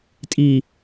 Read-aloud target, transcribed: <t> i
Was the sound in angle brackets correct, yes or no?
no